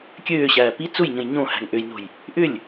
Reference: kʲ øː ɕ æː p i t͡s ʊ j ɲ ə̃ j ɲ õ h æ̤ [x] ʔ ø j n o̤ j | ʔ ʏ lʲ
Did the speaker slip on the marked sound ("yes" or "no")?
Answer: yes